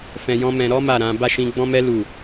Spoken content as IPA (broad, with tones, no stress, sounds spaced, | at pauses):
f ɛ̃˧ j ɔ̃˦ m ɛ̃˧ ɾ ɔ˦ m a˦˨ ɾ ã˨˦ b a˦˨ ʃ ĩ˧ ɡ͡b ɔ̃˦ m ɛ˦ l u˦˨